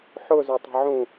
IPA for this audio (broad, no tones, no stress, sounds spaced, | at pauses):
ħ ʊ z ɵ tˤ ə̤ ʕ ũ